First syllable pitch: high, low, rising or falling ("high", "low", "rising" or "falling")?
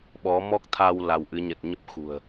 rising